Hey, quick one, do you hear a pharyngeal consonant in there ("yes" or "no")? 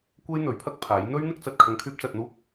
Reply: no